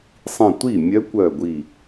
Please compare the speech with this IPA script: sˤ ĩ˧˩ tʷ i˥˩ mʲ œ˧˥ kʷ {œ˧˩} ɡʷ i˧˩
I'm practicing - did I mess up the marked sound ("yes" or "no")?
no